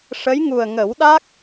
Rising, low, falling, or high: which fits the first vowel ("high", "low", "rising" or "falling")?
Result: rising